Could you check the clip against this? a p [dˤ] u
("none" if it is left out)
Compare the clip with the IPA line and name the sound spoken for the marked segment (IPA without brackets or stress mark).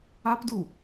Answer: d